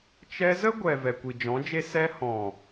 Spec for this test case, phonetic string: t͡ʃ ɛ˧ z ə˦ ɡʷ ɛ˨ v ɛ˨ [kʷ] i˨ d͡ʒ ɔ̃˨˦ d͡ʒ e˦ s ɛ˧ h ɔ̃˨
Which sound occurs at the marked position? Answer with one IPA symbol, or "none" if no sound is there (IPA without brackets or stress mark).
kʷ